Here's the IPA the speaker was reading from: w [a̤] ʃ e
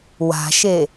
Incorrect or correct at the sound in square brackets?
correct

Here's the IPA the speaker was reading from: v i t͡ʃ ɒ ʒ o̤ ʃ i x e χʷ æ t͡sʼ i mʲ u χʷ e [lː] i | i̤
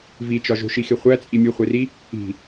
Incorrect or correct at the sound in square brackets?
incorrect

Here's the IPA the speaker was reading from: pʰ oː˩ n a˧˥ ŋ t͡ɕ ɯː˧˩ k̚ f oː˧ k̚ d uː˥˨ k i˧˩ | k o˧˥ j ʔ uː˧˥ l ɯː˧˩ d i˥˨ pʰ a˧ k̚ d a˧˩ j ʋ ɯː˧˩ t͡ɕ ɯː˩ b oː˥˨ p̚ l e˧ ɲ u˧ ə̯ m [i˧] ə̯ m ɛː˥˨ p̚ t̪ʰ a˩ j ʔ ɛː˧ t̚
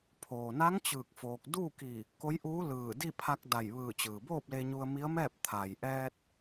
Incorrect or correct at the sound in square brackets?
incorrect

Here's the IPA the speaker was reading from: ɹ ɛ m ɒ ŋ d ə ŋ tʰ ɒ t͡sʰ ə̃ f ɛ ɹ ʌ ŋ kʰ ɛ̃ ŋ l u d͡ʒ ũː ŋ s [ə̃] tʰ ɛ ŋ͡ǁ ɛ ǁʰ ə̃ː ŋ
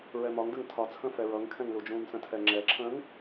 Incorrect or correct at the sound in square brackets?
correct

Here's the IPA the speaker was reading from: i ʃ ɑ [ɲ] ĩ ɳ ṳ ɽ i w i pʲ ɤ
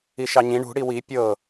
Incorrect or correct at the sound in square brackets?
correct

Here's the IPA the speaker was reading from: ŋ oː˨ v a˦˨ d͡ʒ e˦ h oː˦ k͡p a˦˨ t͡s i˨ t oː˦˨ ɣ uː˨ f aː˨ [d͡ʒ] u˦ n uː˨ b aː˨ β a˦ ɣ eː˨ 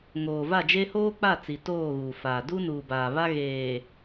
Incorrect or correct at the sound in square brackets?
incorrect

